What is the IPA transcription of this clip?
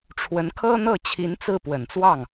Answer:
ʈ͡ʂʰ w ə˧˥ n kʰ ɤ˥ n̪ ɤ˥˩ t͡ɕʰ i˧˥ n t͡s ɹ̩˥˩ p w ə˨˩ n t͡s w ɑ˥˩ ŋ

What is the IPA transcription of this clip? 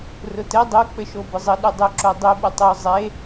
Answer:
r ʊ t ɘ dˤ o k͡p ɘ ʃ o b ʊ zˤ ɘ ɗ y dˤ ʊ ǁ o dˤ y ɓ ʊ tˤ o zˤ e

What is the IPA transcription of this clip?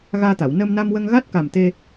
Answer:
ɣ aː˧ t̪ a˨˩˨ w n əː˧ m n a˧ m w ə˧ ŋ ɣ a˦˥ t̚ k a˨˩ m t̪ e˧

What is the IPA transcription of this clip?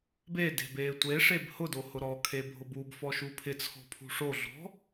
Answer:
b e d e̤ b eː tʷ e ʂ e b h ʊ d o h ʊ ɾ ɔ kʰ e bʱ ʊ b u b f ɔ ʃ u pʰ ɪ t͡sʰ ɔ̤ pʰ ṳ ʂ o ɮ ɔ̤

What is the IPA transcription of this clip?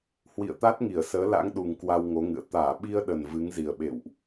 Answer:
h w ḭ˧˨ ə̯ t̪ a˦˥ t̚ ŋ i˧˩ ə̯ s əː˨˦ l a̰˧˥ ŋ ɗ u˨˩ ŋ k w a˧ w ŋ o˨˦ ŋ ɨ̰˧˨ ə̯ t̪ aː˧˩ ɓ i˧ ə̯ ɗ ə˨˩ n v ɨ˨˦ ŋ z i˨˩ ə̯ ɓ ḛ˧˨ w ʔ

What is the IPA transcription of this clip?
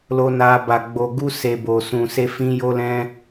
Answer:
l o˧ n a˧ b a˨ ɡ͡b o˨ ɡ u˧ s e˨ b o˨ s ũ˨ s e˧ f ĩ˧ j o˧ l ɛ̃˧

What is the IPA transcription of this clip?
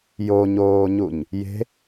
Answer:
j o ɲ oː ɲ u ɲ | j e̤

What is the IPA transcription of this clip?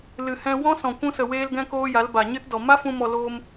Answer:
l ɨ˨ h ɛ̃˧ w ɔ̃˦ s ɔ̃˨ kʷ ũ˧ s ə˨ w eː˧ l ɡ ɛ̃˦ k oː˦ j a˨˦ l b a˨ ɲ ɨ˦ t d ɔ˨ m a˦ f ũ˧ m ɔ˨ l oː˧ m

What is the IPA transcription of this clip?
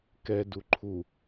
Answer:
k ɛ d u ǃʰ u

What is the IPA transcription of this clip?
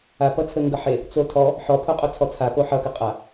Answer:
a p ʌ t͡sʰ ə ŋ ɡ ʌ ħ e | t͡s o tʰ ɔ | ħ ɔ pʰ o qʼ o t͡sʰ ɔ t͡sʰ a p o ħ ʌ k ə qʼ a

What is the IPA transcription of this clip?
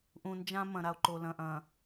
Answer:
ʔ ũ˨ n d͡ʒ ã˦ m ɐ̃˨ ɾ a˨ o̯ ǃ o˨ l ɐ̃˨ ʔ ɐ̃˨

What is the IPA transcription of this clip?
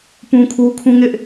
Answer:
p ũ˦ kʰ u˦ kʰ ũ˦ ŋ ɪ˦ ʔ

